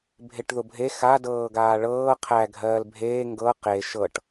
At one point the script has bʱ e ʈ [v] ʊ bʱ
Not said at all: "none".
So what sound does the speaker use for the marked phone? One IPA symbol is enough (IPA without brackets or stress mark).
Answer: ð